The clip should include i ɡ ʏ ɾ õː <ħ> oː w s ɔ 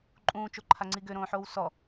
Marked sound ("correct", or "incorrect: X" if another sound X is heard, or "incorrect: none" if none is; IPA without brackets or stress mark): correct